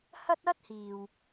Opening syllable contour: high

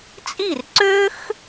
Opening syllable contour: falling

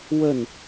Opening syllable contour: falling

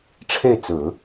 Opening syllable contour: falling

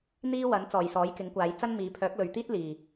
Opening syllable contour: high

